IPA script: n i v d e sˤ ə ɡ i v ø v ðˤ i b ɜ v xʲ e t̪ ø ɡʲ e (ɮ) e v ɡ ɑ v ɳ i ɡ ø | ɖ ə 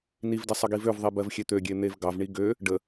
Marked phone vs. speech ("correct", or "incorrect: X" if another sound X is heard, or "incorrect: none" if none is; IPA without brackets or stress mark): incorrect: n̪